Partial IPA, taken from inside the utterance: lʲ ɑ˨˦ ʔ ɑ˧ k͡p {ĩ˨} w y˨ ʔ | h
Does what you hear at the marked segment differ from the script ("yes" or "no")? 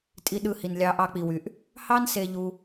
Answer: yes